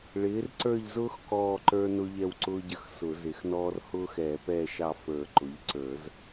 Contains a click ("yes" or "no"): yes